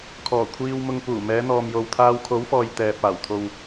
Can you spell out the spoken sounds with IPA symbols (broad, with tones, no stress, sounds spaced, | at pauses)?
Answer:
kʰ ɔː˨˩ kʷʰ iː˧ w m ʊ˧ ŋ p uː˨˩ m ɛː˨˧ n̪ ɔː˨ m j o˨ w t̪ʰ aː˧ w kʰ o˨˥ w f ɔː˨ j t̪ ɛː˨ p̚ aː˨˩ w t̪ʰ o˧ w